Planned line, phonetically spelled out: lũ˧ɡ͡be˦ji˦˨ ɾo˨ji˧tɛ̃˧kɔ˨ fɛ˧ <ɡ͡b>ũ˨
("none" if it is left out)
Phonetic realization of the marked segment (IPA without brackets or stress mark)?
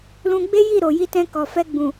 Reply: ɡ͡b